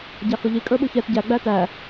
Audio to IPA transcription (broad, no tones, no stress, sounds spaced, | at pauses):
ɟ ɑ x ʊ ʎ i kʼ ə˞ ɓ u ç ɛ t ɟ æ ɡ͡b æ t æ